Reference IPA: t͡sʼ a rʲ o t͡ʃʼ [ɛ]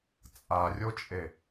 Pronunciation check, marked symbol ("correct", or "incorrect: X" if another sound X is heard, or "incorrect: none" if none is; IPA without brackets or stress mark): incorrect: e